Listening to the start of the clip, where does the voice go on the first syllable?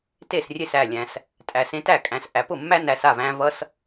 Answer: falling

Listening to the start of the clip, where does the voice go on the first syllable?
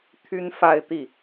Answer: high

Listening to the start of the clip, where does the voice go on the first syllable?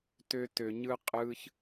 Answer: high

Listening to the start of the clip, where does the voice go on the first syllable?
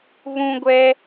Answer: high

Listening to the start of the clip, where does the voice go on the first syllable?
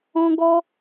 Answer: high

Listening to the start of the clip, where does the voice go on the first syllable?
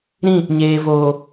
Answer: falling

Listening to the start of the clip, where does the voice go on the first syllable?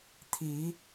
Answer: rising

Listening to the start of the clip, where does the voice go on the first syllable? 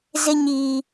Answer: high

